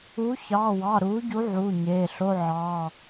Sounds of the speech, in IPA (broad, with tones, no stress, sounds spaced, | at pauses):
u˨˥ ç ɑː˩˧˩ w ɑ˩˧˩ ɾ uː˨˥ ɟ u˨˥ ʕ uː˩˧˩ ɲ eː˩˧˩ ɬ o˧˥˧ ʕ ɑː˩˧˩